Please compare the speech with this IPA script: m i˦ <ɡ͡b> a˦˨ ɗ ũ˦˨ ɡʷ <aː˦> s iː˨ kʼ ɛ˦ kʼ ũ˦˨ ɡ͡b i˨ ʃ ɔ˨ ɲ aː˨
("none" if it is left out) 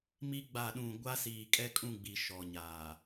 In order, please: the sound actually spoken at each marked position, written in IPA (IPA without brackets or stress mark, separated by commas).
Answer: ɡ͡b, a˦